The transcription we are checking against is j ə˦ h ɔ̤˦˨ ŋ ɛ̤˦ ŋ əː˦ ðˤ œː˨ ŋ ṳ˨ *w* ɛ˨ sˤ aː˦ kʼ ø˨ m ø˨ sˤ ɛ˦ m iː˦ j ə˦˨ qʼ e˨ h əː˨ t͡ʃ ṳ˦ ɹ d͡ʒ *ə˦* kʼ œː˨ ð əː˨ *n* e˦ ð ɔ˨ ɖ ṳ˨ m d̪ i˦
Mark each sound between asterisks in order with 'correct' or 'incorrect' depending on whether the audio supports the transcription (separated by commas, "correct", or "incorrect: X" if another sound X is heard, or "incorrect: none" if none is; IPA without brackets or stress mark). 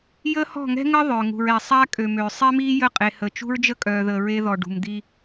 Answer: incorrect: ɹ, correct, incorrect: ɹ